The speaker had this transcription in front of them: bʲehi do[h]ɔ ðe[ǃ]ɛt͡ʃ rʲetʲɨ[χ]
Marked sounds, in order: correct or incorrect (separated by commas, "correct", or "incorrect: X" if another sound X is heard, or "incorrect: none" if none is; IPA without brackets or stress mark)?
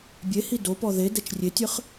incorrect: p, incorrect: d, correct